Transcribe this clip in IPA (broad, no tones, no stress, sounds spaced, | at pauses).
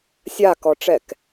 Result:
sʲ a k ɔ ʈ͡ʂ ɛ k